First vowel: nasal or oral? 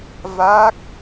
oral